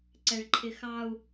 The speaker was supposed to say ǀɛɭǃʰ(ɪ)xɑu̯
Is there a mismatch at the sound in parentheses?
no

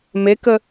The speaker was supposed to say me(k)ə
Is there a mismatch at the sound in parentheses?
no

